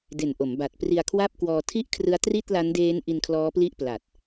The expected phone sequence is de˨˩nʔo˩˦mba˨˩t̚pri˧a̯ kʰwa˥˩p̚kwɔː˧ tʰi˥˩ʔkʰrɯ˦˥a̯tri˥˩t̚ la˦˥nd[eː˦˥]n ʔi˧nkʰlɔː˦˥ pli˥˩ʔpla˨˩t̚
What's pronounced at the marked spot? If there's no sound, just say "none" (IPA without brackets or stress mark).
eː˦˥